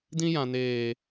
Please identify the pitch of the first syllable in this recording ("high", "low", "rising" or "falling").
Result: high